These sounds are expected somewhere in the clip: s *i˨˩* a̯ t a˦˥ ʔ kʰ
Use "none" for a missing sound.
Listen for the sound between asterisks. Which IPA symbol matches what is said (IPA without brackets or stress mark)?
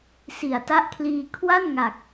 i˨˩